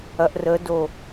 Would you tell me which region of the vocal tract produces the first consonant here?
throat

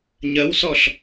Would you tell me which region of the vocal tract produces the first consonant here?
palate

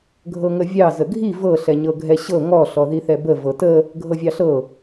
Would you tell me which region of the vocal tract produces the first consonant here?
velum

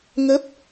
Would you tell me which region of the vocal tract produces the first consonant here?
velum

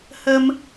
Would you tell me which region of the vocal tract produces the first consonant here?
throat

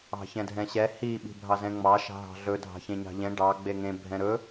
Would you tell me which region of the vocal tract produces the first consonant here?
palate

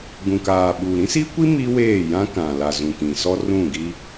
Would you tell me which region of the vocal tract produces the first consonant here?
velum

